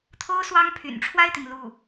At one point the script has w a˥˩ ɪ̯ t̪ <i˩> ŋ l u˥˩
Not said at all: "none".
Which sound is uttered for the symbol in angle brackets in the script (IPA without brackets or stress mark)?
i˩